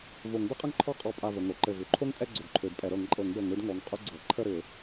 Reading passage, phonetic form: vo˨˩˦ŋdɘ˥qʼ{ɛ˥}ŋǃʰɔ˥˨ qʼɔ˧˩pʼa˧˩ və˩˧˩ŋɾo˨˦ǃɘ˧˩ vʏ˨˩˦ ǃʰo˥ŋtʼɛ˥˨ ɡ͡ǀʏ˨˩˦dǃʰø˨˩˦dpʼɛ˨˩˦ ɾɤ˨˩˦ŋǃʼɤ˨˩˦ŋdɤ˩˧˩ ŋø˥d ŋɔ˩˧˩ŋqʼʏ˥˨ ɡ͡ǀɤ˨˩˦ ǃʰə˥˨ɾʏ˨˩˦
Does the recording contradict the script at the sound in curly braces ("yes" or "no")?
yes